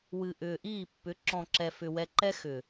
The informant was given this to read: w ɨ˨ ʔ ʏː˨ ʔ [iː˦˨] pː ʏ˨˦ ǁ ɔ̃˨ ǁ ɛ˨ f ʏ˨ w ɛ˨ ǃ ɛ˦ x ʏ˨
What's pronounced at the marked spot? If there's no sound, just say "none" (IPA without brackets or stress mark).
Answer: iː˦˨